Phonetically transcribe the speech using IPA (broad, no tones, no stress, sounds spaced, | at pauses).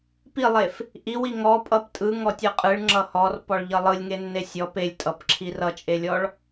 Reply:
p i lˠ e f | ʔ i w i ŋ ɔ pʼ ʌ p tʼ ɯ ŋ ɔ tʲ ɯ qʼ ɯ ɭ ŋ͡ǁ ʌ h ɔ r p ɔ ɭ ʎ ʌ lˠ ɯ lʲ ŋ e nː e sʲ ɔ p e lʲ tʼ ʌ p ǁʰ i r ʌ t͡ʃʼ e lʲ ɔ ɭ